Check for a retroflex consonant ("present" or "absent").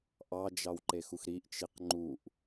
absent